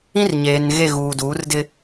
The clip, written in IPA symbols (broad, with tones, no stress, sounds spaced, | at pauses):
ĩ˦ r ɲ eː˨ n ɣ e˦˨ ɣ uː˨ d uː˨˦ r d ɪ˦